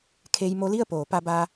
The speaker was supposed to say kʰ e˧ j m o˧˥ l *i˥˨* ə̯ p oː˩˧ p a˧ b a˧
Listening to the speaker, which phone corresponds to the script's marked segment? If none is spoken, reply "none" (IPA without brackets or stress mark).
i˥˨